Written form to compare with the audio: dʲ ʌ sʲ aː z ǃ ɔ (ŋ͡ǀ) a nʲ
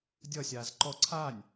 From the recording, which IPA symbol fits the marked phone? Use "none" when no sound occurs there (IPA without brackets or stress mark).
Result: ǀʰ